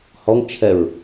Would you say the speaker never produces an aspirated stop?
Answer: no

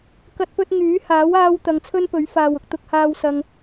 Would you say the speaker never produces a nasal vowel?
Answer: yes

